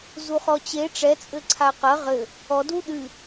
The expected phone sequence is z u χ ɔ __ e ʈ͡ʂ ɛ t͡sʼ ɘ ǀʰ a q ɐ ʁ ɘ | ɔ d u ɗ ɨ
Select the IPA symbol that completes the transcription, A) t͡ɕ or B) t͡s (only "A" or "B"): A